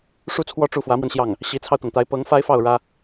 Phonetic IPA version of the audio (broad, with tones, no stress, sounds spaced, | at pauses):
ʂ u˥ t͡sʰ w ɔ˥˧ ʈ͡ʂ u˥˩ f w ä˧˥ m w ə˧ n ɕ j ɑ˥˩ ŋ | ɕ i˧˥ t͡sʰ ɑ˧ ʊ̯ t̪ ɤ˩ ŋ t̪ a˧˥ ɪ̯ p ɤ˧˥ ŋ f a˥ ɪ̯ f ɑ˥˩ ʊ̯ ɻ ä˥